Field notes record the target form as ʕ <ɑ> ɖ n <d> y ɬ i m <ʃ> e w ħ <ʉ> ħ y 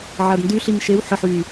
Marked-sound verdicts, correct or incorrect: incorrect: a, correct, correct, incorrect: ə

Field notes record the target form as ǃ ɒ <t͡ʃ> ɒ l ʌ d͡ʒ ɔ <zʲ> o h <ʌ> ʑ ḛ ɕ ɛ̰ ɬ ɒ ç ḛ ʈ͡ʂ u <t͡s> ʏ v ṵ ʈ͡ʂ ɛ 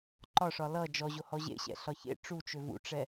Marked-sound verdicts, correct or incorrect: incorrect: ʂ, incorrect: ʑ, incorrect: ɔ, incorrect: t͡ʃ

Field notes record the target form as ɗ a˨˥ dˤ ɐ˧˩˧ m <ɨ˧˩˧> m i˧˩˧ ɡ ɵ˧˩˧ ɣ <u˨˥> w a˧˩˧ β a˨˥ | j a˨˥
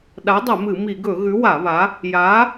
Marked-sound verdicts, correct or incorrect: correct, incorrect: ʉ˨˥

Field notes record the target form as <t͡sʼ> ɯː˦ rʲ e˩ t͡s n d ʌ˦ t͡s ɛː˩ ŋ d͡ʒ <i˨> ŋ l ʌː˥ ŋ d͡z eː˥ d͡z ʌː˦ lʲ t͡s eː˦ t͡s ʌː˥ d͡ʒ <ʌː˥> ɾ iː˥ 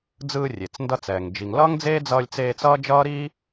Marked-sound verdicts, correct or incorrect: incorrect: d͡z, correct, correct

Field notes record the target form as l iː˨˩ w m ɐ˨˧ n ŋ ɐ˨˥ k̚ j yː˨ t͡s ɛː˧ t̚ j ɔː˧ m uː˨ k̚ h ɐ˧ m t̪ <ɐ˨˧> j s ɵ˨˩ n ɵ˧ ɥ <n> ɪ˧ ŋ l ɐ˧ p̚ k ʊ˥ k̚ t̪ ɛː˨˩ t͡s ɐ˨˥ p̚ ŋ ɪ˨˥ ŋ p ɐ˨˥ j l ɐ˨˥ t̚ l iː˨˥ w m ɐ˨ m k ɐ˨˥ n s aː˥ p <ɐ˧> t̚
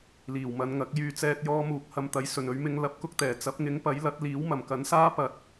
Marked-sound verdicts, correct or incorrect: correct, incorrect: m, incorrect: ɐ˨

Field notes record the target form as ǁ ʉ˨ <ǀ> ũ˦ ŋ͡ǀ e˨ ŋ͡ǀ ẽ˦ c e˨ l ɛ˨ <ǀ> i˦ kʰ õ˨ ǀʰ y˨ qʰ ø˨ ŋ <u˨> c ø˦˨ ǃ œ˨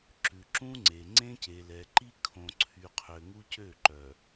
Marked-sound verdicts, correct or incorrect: incorrect: ǁ, incorrect: ǃ, incorrect: u˦

